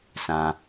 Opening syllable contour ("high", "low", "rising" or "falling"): low